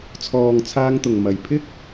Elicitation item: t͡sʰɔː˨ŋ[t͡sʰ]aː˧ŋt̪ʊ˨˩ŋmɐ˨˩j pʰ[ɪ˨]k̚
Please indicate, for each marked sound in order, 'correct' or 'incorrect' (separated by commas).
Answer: correct, incorrect